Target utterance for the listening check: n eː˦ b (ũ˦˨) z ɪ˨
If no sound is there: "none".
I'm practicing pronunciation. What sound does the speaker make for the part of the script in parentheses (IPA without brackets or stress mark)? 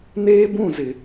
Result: ũ˦˨